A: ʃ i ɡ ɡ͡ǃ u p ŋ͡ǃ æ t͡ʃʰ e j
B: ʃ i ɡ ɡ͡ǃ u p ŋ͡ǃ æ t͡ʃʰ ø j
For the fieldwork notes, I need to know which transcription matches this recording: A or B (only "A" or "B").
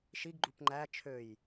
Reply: B